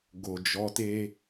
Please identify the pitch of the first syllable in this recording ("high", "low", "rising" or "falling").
low